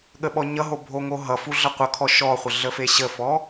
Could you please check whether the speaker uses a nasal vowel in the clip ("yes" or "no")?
no